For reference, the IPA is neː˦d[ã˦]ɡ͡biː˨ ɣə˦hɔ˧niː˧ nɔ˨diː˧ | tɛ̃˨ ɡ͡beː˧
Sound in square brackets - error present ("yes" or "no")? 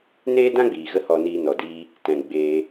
no